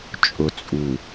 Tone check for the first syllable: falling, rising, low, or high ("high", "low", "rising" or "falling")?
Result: low